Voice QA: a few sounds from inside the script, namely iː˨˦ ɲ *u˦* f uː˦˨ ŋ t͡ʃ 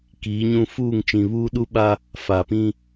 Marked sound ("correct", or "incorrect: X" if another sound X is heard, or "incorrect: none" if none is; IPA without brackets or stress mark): incorrect: ũ˦